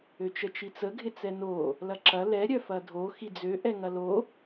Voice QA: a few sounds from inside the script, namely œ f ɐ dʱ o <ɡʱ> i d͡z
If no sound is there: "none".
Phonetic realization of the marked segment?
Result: x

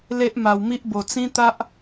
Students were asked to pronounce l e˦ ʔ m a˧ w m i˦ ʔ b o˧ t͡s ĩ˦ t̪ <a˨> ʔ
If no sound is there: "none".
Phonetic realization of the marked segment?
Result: a˦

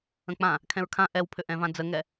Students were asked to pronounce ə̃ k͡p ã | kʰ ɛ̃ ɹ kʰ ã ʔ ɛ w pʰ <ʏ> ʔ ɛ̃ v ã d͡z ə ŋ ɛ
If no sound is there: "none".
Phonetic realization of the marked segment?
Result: ʏ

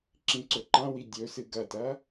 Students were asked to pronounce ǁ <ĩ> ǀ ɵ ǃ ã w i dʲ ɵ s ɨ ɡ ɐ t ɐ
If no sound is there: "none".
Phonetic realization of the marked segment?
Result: ĩ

